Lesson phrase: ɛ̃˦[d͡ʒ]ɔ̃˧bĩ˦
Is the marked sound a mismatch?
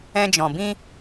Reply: no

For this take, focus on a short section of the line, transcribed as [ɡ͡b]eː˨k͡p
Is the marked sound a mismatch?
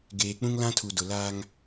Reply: yes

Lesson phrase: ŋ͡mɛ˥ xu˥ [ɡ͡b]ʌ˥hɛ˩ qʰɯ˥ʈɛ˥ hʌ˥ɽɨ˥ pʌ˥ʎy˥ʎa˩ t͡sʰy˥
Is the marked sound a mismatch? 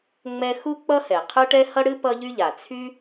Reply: yes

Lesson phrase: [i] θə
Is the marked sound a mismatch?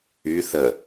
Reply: yes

